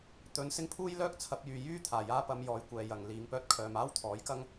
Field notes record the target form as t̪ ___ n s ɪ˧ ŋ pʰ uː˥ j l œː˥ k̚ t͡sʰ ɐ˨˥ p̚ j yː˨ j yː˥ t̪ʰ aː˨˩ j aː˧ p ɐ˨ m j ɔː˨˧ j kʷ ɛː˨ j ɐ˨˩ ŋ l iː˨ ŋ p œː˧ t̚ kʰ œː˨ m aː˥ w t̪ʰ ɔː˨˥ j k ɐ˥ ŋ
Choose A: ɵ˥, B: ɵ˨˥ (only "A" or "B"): B